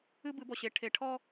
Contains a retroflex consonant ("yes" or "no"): yes